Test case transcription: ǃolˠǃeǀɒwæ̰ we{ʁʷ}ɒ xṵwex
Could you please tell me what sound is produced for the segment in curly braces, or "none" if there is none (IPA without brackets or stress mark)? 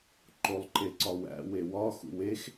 w